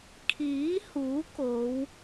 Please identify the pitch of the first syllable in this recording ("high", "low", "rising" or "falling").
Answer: rising